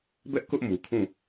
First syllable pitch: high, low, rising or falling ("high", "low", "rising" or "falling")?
high